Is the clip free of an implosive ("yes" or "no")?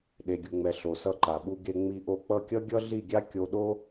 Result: no